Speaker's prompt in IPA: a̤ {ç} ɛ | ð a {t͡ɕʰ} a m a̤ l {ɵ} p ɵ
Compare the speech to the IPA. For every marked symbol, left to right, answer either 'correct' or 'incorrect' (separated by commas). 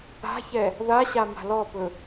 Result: correct, incorrect, incorrect